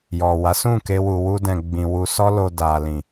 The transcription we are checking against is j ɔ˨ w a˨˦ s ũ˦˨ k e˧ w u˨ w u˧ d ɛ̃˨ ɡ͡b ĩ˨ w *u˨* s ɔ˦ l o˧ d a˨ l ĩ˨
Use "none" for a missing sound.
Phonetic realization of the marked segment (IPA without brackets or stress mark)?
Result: u˧